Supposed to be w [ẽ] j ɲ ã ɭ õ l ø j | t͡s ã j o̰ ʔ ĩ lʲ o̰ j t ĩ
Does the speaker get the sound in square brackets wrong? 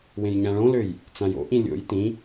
no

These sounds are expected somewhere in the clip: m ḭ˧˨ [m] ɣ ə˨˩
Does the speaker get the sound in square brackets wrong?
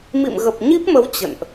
no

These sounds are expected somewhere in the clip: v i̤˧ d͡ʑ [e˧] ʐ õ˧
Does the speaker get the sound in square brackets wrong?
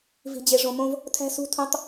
no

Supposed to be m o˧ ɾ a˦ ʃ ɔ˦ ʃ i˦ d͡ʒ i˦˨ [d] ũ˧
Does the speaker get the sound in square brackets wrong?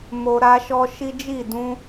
no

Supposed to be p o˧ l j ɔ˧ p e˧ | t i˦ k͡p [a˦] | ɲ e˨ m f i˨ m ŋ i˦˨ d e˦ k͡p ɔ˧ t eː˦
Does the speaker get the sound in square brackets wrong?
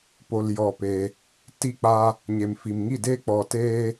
no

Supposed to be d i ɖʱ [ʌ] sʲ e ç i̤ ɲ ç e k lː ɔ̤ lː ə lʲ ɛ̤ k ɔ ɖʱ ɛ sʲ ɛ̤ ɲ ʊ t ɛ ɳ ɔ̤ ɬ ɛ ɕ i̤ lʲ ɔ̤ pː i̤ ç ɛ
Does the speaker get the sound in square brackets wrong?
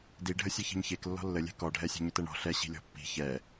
yes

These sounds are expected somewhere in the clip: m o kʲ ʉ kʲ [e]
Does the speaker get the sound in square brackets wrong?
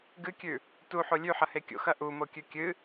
yes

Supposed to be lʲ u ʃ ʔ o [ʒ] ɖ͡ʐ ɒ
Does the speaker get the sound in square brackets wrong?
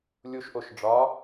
yes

